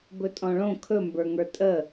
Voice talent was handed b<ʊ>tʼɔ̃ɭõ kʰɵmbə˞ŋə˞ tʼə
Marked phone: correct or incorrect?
incorrect: ɵ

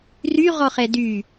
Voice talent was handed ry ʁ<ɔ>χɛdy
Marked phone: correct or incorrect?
correct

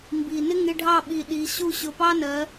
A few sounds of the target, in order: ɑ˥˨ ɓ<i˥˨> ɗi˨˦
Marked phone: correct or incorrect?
incorrect: i˧˩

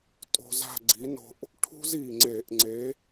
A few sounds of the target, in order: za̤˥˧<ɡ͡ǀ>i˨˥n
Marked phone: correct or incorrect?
correct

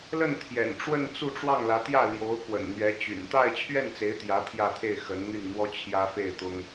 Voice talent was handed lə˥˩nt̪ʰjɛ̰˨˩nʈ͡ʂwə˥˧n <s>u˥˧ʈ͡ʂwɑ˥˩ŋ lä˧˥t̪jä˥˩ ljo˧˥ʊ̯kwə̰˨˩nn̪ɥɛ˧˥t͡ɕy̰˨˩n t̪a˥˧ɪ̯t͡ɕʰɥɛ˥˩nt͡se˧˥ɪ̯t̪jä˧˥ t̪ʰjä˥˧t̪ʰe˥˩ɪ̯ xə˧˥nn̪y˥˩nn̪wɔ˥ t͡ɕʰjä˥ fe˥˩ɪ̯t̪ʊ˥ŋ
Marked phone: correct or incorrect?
incorrect: t͡s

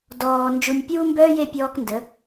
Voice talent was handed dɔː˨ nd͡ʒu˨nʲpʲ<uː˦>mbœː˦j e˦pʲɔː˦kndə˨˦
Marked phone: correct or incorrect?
correct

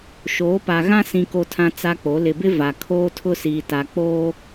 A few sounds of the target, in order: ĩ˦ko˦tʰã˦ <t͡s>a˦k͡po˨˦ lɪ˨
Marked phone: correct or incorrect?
correct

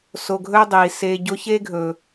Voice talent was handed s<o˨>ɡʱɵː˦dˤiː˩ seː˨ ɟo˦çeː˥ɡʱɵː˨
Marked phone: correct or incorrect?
correct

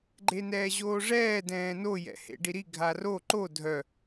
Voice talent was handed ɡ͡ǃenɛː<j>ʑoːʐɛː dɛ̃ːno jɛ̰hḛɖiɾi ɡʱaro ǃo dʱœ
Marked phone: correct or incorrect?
incorrect: none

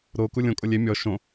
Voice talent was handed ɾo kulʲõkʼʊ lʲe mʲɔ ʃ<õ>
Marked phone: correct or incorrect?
correct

